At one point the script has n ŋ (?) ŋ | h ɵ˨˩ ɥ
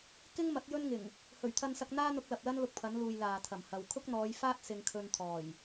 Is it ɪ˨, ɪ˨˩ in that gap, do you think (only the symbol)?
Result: ɪ˨˩